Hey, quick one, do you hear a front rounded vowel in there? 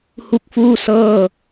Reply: no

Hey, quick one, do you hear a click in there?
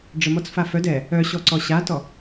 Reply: yes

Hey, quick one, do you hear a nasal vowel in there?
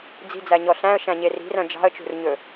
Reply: yes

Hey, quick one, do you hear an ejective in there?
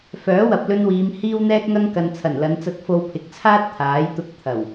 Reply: no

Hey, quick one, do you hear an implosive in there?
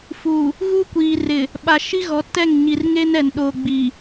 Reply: yes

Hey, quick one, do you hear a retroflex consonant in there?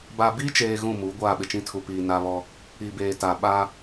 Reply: no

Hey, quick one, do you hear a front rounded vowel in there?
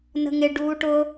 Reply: no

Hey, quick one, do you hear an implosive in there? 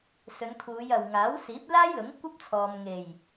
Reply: no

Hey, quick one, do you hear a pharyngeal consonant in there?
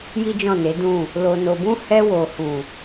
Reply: no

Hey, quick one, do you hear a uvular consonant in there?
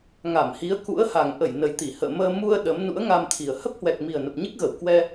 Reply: no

